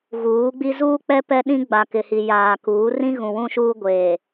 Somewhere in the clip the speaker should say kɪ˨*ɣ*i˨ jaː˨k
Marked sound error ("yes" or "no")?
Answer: yes